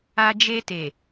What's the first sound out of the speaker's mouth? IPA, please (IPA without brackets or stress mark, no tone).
a